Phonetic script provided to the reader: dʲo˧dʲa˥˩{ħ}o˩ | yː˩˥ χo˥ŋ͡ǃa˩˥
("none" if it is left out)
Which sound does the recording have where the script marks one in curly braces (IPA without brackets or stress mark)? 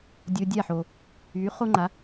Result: ħ